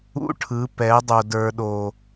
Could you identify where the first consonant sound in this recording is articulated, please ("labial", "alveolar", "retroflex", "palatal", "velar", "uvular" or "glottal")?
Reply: retroflex